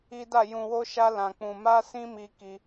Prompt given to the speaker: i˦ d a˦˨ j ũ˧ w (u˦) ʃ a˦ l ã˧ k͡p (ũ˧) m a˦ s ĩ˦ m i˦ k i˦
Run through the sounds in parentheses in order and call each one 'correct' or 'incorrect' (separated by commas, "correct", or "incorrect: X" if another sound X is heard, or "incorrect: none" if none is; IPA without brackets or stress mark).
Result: incorrect: o˦, correct